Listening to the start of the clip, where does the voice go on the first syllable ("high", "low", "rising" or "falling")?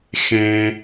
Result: high